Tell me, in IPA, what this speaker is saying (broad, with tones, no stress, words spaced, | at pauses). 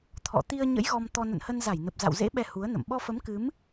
t̪ʰɔ̰˧˨ t̪i˧ə̯ɲə̰˧˥j ɣɔ˧mt̪ɔ˧ nə̰˧˨nhə˧nza˧˩jnə˨˩p̚ za̰˧˨wzḛ˧˥ ɓɛ˧hu˨˦ə̯nə̰˧˨m ɓɔ˧fə˨˦mkɨ˨˦m